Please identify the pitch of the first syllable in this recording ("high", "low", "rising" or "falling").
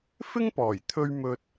high